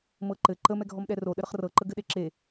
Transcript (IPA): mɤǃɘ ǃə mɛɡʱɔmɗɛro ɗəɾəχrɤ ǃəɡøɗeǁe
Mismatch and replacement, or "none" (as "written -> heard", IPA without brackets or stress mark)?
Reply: ø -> ɘ